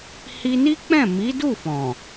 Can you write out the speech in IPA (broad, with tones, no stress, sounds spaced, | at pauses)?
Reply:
h i˧ n i˦ k͡p ɛ̃˦˨ m i˨˦ d u˦˨ f ɔ̃˨